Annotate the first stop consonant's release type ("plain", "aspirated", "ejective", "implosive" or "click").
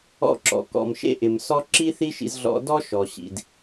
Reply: click